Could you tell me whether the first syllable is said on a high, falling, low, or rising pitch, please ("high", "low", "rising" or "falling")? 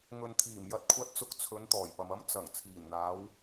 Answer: low